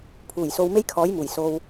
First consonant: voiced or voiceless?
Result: voiceless